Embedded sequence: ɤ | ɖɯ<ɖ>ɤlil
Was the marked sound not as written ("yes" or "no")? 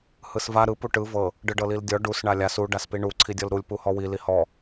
no